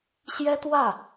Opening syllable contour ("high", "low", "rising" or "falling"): high